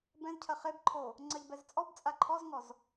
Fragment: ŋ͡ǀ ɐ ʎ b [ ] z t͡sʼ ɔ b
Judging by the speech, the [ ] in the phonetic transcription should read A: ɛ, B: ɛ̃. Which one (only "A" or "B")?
A